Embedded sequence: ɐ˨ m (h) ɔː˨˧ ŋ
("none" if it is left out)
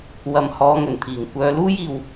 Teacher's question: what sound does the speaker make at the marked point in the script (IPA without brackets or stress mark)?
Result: h